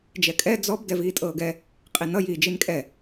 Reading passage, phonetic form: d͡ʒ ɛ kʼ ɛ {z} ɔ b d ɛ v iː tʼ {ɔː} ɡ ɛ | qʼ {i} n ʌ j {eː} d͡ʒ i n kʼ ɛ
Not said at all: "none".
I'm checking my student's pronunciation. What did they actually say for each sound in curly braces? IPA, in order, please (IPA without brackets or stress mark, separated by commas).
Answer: d͡z, ɤː, i, iː